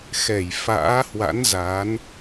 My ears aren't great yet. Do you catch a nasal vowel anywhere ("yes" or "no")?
no